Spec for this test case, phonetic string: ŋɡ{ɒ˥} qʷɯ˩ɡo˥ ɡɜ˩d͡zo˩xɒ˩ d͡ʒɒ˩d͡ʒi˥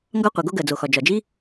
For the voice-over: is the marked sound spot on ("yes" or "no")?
yes